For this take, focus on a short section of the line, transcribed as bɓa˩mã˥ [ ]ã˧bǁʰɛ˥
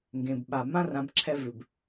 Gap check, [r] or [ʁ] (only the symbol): r